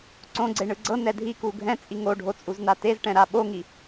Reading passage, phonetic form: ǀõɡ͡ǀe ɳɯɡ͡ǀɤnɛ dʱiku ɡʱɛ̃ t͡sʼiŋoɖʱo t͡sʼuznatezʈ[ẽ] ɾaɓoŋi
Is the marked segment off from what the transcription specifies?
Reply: yes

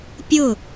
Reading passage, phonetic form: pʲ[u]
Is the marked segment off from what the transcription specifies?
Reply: yes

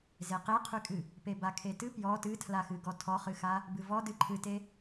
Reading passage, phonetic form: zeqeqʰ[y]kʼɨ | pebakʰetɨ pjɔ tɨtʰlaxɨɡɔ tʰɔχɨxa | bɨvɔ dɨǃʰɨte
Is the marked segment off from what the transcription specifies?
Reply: no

